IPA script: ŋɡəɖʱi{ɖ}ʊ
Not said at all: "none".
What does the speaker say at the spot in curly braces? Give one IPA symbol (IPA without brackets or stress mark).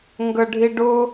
ɖ